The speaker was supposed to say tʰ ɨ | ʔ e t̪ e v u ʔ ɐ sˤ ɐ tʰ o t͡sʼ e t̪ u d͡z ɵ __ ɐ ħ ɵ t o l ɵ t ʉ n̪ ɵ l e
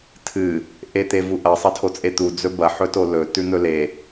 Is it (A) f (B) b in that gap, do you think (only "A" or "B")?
B